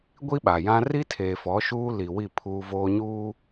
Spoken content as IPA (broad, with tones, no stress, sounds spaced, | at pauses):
ɡʷ i˦ ɓ a˨ j ã˦ r i˦ tʰ eː˨ f ɔ˨˦ ʃ uː˦ l i˨ w i˦˨ pʰ uː˦ v oː˦ ɲ uː˦